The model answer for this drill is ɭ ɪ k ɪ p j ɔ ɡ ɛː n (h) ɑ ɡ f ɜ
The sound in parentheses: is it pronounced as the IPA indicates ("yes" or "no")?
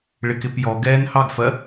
yes